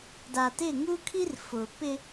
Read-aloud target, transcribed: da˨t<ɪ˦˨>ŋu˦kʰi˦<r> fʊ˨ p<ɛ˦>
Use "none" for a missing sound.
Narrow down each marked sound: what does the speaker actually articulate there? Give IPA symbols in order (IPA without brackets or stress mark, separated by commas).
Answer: ɪ˦˨, r, ɪ˦